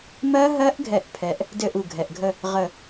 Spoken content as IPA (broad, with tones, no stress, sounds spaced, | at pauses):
m ɜ˦˥ ɦ ɜ˦˥ ʔ ɡʱ ɛ˧˩ ʔ pʰ ɛ˦˥ ʔ | d ɘ˥˧ ʔ u˧˩ ɡʱ ɛ˩˧˩ ʔ ɡʱ ə˥˧ | ʁ ə˧˩